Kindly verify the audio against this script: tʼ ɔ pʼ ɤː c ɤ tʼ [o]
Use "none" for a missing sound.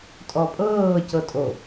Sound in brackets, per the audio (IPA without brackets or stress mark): o